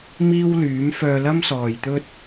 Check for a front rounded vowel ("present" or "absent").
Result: present